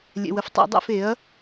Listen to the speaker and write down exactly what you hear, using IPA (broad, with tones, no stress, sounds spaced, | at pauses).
lʲ ɛ̰˨ w ə˨ f tˤ ɛ̰˨˩˦ dˤ ɛ̰˨˩˦ f e˩˥ ɐ̯